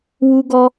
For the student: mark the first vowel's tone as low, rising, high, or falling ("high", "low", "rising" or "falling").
high